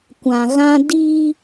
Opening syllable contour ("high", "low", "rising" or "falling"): low